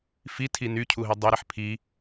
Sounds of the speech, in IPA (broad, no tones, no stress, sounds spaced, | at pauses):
f i tʰ i n y cʰ u ɦ i dˤ i ɾ e ħ pʰ i